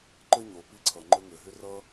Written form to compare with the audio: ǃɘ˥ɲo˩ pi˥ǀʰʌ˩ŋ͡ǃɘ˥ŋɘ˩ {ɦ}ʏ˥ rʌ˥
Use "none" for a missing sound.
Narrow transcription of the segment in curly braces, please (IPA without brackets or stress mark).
ɦ